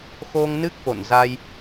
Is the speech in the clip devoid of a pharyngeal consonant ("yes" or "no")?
yes